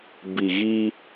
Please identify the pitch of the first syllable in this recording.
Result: low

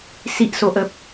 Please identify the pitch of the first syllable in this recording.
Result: high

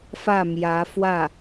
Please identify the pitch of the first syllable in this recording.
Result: falling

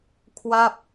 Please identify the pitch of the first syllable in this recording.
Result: falling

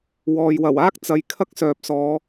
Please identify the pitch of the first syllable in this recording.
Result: low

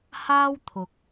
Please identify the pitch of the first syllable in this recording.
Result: high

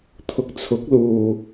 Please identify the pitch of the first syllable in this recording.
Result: low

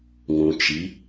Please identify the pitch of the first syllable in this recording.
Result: low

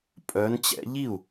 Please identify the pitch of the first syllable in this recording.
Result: rising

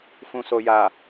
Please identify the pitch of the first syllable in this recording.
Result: low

